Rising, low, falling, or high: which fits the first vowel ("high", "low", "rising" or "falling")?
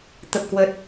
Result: low